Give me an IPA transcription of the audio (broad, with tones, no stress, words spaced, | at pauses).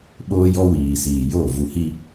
ɓoː˦jɔ˦wiː˨siː˨ jo˦˨ vu˨hi˦